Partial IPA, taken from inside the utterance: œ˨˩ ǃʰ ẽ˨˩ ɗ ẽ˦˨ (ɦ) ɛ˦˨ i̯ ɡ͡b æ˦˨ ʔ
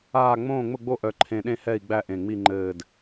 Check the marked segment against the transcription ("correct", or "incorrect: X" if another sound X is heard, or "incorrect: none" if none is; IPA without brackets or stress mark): incorrect: h